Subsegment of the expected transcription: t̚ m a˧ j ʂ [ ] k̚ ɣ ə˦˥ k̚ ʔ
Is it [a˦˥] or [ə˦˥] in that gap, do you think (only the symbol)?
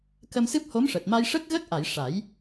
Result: ə˦˥